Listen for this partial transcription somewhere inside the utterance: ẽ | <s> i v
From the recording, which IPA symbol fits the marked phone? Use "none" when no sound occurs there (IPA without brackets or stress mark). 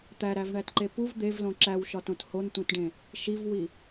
ʃ